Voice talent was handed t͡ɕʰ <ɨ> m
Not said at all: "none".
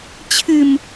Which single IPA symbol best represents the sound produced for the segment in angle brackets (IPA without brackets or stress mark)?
ɨ